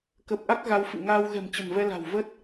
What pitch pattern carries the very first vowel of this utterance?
low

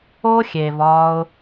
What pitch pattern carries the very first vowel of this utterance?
high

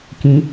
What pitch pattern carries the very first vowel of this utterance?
rising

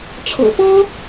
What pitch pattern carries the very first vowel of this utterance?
low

